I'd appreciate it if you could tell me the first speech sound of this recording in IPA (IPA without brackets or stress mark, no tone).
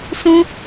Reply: s